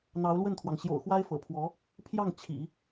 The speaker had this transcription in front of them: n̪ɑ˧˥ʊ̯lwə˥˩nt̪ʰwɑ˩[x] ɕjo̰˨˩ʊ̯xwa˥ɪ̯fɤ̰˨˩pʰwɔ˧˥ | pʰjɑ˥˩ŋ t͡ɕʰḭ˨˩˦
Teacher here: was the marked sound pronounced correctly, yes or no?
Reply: no